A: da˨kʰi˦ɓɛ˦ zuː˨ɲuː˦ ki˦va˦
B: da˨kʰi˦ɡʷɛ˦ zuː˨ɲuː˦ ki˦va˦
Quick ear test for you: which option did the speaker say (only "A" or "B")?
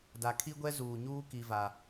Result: B